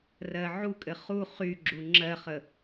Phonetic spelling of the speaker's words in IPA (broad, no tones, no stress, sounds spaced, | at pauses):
r ɜ ʕ u kʼ ɘ χ u χ y ɡ͡ǁ u ŋ͡ǁ ɜ χ ə